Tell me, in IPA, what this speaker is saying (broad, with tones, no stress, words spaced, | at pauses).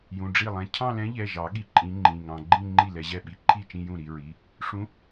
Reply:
jũ˩˧˩ɖ͡ʐi˥˩lˠɛ̃˧ cʰɑ̃˥˧lɛ̃˧˥ʎɛ˩˧˩ʒɑ˨˩˦ ɠi˧ǃʼĩ˧˥ŋ͡ǃĩ˩˧˩ŋɑ̃˧ ɡ͡ǃĩ˥˧ ŋ͡ǃi˥˩lɛ˧ʑɛ˥˩ ɓi˧˥ǃʰi˥˩t͡ʃĩ˥˧jũ˥˩ ɾi˧ɹi˩˧˩ | ʂũ˧˥